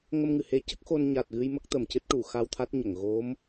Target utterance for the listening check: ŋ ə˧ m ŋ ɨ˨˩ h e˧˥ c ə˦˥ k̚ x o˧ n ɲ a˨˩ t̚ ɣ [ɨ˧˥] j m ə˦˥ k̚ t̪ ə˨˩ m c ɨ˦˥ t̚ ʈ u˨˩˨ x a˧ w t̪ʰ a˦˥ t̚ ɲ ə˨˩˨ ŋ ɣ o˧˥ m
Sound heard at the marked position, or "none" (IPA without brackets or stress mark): ɨ˧